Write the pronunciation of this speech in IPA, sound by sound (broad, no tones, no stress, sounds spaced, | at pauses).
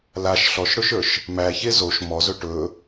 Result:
l a ʃ ɬ ɔ ʃ ɽ ɵ ʃ ə˞ ʃ | m æ ç e z o ʃ m ɔ z ɵ ʈ ɵ